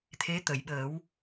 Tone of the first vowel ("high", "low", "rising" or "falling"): rising